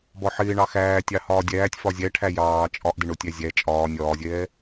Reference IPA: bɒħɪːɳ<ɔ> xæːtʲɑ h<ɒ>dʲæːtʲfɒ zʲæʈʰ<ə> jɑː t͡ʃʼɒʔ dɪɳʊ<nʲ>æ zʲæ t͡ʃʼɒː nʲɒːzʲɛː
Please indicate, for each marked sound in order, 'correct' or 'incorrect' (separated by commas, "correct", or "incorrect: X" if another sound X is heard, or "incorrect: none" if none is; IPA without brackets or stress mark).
incorrect: ɑ, incorrect: ɒː, incorrect: æ, incorrect: tʲ